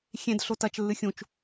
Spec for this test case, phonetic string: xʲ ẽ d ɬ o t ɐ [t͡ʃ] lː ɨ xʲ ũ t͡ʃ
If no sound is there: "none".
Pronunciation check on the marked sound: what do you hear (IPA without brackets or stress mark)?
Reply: t͡ʃ